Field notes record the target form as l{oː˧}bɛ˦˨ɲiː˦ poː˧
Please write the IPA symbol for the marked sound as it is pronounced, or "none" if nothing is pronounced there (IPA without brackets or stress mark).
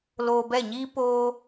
oː˧